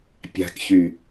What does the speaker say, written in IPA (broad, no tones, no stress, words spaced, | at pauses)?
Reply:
pʲa̤kçy